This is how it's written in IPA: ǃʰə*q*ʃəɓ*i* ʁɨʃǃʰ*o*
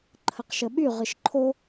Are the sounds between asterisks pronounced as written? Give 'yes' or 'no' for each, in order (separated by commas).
yes, no, yes